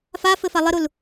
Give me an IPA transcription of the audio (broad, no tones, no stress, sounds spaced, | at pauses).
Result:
f a f ɘ f a lˠ ɘ ɾ u l